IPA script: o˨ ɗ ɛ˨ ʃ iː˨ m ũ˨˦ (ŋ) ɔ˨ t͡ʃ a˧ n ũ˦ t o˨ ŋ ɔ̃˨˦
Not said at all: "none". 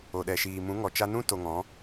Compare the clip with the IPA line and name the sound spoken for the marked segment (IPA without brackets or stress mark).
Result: ŋ